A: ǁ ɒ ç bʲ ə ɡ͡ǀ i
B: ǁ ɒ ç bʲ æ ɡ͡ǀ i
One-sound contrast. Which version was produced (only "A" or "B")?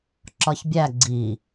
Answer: B